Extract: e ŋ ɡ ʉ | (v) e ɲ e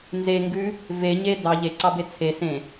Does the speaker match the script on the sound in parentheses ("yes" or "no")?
yes